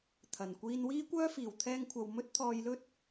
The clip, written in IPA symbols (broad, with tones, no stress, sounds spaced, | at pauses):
t̪ʰ ɐ˨˩ n kʷ iː˧ n w iː˥ kʷ œː˥ f iː˨˩ w t̪ʰ ɛː˧ ŋ kʷʰ ɐ˨ w m ɵ˥ t̚ t̪ʰ ɔː˧ j l ɵ˥ t̚